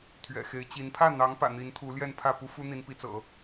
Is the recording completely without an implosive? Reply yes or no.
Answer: yes